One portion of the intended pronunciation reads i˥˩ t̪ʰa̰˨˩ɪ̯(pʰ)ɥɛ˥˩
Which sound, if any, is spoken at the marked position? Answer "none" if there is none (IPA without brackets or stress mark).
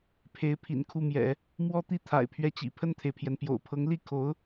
pʰ